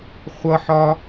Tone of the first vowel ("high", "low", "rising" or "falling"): high